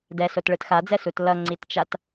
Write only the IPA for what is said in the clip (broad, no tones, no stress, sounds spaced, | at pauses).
d ɛ s o t ɭ ɯ t x a d͡z ɛ s u t l ʌ ŋ͡ǀ i t t͡ʃ a t